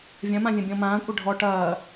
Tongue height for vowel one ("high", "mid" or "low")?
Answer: low